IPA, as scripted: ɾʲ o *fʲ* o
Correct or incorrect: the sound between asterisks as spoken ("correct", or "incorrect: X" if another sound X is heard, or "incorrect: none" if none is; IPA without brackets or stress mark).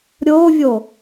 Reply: incorrect: vʲ